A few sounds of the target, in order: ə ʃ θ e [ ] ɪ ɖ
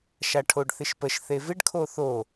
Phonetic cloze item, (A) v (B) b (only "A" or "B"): A